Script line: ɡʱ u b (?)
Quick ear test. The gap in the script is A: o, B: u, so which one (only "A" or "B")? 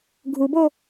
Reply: A